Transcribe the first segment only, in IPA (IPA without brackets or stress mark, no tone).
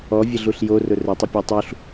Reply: ɔ